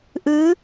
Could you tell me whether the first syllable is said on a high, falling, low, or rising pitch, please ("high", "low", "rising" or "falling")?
rising